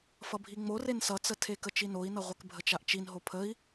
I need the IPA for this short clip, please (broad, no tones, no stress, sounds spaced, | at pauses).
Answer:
f ʌ bʱ i ŋ͡m o r e n s ʌ t͡s ə tʰ e k ə t͡ʃ i n o i̯ n ʌ ʁʷ ɛ k bʱ ə t͡ʃ a ʔ t͡ʃ i n ɦ o pʰ ə i̯